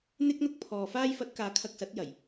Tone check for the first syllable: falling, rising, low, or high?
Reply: high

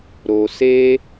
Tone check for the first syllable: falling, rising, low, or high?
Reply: low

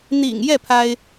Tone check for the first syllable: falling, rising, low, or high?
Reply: low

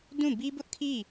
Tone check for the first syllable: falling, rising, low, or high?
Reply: falling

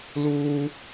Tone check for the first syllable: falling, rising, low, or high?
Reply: high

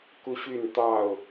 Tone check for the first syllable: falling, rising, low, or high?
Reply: high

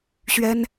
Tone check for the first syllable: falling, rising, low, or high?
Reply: high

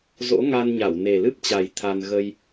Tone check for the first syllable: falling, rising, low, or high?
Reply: rising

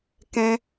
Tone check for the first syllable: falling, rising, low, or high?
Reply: high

